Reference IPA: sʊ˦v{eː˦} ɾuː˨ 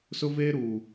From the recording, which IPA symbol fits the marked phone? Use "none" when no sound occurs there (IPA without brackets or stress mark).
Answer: eː˦